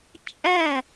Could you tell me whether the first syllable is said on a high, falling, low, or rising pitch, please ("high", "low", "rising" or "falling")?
falling